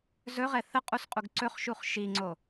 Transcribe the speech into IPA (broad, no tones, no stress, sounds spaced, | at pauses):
z ɵ ʁ ɛ θ ə qʼ u s qʼ u ɡ ǀ ɵ χ ʃ u χ ʃ i ŋ͡ǀ o